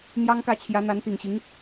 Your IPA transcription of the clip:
n̪ j ɑ˥ ŋ k ä˥˩ t͡ɕʰ j ä˧˥ n̪ a˧˥ n t̪ i˨˩ ŋ ɕ i˧˥ ŋ

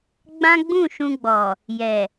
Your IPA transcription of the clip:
ɡ͡b ã˦ ɡ͡b ũ˦˨ ʃ ũ˧ ɡ͡b ɔ˨ | j ɛ˨

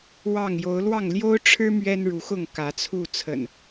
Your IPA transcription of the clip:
w ɑ˥˨ ŋ j o˨˦ ʊ̯ l w ɑ˥˨ ŋ l j o˦ ʊ̯ ʈ͡ʂʰ ɻ̩˦ m ɥ ɛ˦ n ɻ u˨˦ x ʊ˥˨ ŋ k ä˨˦ t͡sʰ u˥˨ t͡sʰ ə̰˨˩ n

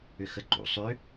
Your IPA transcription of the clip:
ʏ x ə ǃ ṵ sˤ ʏ

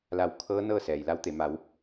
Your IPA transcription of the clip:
l a˧˩ w kʰ ɤː˧˥ n ɤː˥˨ s ɛː˩ j l a˧˥ w t̪ e˩˧ m a˩˧ w

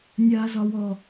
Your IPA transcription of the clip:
nʲ aː z ɒ w ɔ

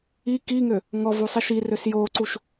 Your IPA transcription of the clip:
i k i ŋ ø | ŋ ɔ v u sˤ i ʃ i r ø s j o ǀ u ʃ

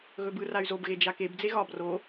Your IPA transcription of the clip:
ɣ ɵ b ɯ r a y̯ z o b ɣ e d͡ʒ a k e b d͡z e ɣ ɒ b r o

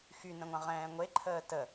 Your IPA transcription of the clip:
x y n ə̃ ŋʷ ã ʁ ɛ̃ː ŋʷ e ǃʰ əː t ə

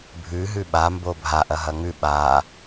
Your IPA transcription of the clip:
bʱ ʉ ɦ ʉ ɓ a m b o bʱ a ʔ ɐ ɦ ɐ ŋ ʉ ɓ a

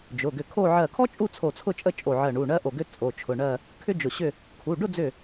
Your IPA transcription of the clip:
d͡ʒ ʊ˩˧˩ ɡ ʏ˧˩ kʰ o˥˧ ʕ ɜ˧˩ kʰ ɔ˥ t͡ʃʼ u˥˧ t͡sʰ o˧˩ t͡sʰ ʊ˥˧ t͡ʃʼ ə˥˧ t͡ʃʼ o˧˩ ʕ ɜ˧˩ ɳ u˩˧˩ ɳ ɜ˥ ʔ o˧˩ ɡ ʏ˥ t͡sʼ o˩˧˩ t͡ʃʰ ʊ˩˧˩ ɳ ɜ˥˧ | kʰ ʏ˥ d͡ʒ ʊ˧˩ ɕ ʏ˥˧ | kʰ u˩˧˩ ɖ ʊ˥˧ d͡z ʏ˧˩

